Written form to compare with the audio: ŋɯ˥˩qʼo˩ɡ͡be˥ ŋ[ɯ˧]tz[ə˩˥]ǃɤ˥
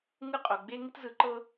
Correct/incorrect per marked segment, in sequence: incorrect: ɯ˥, incorrect: ɯ˩˥

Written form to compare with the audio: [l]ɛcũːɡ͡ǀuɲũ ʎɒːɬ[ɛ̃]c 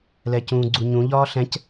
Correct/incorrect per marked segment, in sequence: correct, correct

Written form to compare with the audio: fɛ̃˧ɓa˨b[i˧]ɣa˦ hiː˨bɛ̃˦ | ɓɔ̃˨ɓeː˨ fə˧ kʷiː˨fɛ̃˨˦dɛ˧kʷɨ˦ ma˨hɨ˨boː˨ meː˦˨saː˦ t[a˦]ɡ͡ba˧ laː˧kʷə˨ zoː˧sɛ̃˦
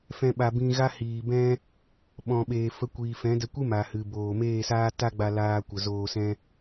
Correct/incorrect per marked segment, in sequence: incorrect: ĩ˧, correct

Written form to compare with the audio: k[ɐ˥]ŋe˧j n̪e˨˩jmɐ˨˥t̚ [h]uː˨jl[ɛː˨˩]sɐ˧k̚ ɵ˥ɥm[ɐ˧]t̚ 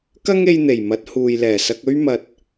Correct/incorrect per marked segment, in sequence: correct, correct, correct, correct

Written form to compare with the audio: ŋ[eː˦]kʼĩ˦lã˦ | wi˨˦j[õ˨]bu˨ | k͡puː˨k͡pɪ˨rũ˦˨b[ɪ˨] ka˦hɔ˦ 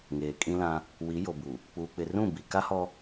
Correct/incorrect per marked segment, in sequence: incorrect: eː˨, incorrect: o˨, incorrect: i˨

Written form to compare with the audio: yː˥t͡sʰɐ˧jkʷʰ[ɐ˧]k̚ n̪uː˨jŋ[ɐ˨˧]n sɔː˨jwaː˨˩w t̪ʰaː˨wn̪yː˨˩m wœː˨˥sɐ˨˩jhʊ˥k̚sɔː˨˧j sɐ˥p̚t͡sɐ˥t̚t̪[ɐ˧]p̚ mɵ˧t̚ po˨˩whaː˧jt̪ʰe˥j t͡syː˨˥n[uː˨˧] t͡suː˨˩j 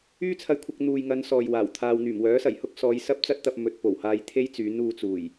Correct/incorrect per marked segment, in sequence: correct, correct, correct, correct

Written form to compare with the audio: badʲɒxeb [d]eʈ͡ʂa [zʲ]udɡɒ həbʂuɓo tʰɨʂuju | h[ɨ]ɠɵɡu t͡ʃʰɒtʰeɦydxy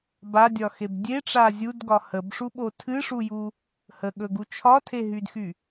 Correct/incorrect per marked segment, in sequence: incorrect: dʲ, correct, incorrect: ə

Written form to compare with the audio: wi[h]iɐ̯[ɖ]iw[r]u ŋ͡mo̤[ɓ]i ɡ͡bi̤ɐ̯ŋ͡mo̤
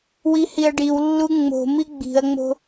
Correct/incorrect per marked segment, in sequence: correct, correct, incorrect: lː, incorrect: m

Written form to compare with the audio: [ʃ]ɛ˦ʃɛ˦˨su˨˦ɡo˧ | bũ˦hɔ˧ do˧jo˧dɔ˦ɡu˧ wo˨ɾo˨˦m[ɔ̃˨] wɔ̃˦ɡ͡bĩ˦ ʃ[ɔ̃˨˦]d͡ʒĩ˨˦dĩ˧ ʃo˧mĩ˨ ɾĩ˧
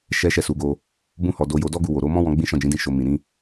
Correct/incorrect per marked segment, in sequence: correct, incorrect: ɔ̃˦, incorrect: ɔ̃˦˨

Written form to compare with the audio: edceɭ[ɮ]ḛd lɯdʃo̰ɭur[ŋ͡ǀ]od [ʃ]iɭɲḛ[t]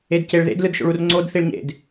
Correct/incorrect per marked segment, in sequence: incorrect: ð, correct, incorrect: θ, incorrect: d

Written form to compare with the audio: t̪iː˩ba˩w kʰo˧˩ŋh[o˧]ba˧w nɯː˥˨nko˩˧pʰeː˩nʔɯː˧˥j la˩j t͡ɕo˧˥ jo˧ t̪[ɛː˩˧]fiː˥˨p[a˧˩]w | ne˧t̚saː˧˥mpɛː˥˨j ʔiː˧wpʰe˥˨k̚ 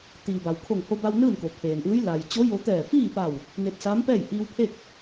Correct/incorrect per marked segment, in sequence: correct, incorrect: ɛː˧˩, correct

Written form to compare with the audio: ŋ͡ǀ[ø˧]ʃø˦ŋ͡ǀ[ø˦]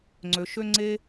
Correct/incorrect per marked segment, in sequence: correct, incorrect: e˦

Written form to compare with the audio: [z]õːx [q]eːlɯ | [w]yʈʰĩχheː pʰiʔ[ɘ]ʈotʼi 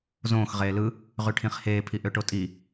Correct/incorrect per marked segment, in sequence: correct, incorrect: ʁ, incorrect: ʁ, incorrect: ø

